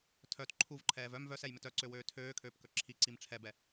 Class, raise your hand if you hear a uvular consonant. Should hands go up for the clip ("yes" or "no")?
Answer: no